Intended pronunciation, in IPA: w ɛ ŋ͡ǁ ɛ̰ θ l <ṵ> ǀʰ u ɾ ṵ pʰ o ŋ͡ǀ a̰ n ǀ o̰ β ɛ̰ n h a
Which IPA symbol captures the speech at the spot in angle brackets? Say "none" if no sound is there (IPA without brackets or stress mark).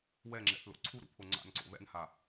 o̰